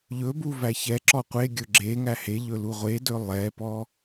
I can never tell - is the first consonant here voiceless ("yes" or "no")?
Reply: no